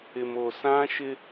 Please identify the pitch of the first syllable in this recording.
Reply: low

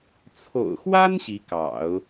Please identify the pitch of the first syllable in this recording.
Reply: low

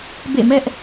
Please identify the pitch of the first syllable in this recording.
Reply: falling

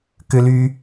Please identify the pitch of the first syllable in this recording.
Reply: high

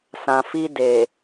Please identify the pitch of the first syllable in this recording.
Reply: low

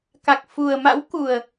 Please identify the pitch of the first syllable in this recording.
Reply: low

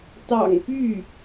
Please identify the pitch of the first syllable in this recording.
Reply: low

